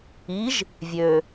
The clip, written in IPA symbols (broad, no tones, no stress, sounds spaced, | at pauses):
i ʒ | vʲ ø